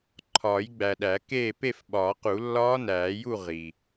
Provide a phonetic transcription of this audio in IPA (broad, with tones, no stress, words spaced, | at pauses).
ǃʰɒː˨˩˦jɡ͡bæ˨ɗæ˨˩˦keː˥˨ pe˥˨fɓɒː˨˩˦qu˨˩˦ lːɒː˦˥næː˨˩˦ju˥˨ ʁi˨